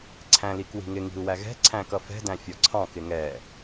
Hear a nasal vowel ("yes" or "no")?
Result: yes